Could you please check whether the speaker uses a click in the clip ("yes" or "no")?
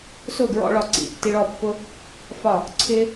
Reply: yes